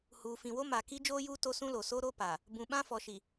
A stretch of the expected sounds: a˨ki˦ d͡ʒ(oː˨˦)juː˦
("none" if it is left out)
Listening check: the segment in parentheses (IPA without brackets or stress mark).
oː˦